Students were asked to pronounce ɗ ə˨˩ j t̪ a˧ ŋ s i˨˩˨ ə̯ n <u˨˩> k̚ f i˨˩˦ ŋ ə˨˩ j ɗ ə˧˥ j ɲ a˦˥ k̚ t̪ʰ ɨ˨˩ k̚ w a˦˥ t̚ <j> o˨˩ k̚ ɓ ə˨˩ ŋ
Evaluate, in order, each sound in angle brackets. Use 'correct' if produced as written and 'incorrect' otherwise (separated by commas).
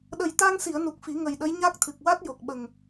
correct, correct